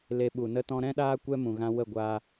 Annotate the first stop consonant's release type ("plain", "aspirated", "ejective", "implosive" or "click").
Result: implosive